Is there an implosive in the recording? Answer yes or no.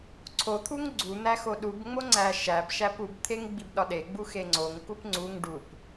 yes